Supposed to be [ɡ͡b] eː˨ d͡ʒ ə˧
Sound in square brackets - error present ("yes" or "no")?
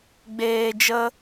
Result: no